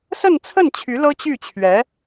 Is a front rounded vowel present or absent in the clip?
present